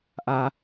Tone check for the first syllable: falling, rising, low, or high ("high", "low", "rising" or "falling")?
low